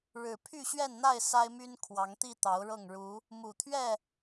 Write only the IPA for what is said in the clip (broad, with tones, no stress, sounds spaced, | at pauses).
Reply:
ɻ ɻ̩˨˩ pʰ y˥˨ ɕ ɥ ɛ˥˨ n n̪ a˥˨ ɪ̯ s a˦ ɪ̯ m y˦ n kʰ w ɑ˨˦ ŋ t̪ i˥˨ t̪ ɑ˨˦ ʊ̯ ɻ ɤ˥˨ ŋ ɻ u˨˦ | m u˨˩ t̪ʰ ɥ ɛ˥˨